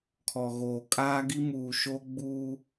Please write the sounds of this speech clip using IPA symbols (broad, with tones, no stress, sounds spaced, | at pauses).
kʰ ɔ˨ ɣ oː˨ kʼ aː˦ ɡ i˦ m uː˨ ʃ o˦ ɡ͡b uː˦